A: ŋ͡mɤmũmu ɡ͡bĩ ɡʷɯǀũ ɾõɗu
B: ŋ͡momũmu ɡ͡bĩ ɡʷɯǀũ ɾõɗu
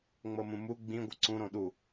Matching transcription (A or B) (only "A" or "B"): A